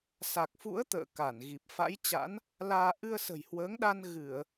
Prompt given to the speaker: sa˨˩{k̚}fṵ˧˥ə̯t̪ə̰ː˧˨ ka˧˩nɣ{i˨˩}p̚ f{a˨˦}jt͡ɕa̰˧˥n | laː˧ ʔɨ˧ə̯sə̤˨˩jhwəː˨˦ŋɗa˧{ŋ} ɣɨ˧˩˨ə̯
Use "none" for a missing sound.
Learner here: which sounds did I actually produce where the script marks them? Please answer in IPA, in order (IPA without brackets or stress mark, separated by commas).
k̚, i˨˩, a̰˧˥, n